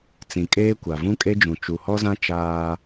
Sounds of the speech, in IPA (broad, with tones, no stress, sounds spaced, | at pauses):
t͡s ĩ˨ kʼ eː˦ kʷ a˨ v ũ˦ kʼ e˦ d͡ʒ ũ˨ t͡ʃ u˨ h ɔ˦ z ã˦ t͡ʃ aː˦